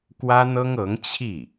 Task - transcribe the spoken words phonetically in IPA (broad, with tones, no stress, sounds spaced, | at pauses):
k w ä˥ n̪ ɤ˥ ŋ ɤ˧˥ ŋ t͡ɕʰ i˥˩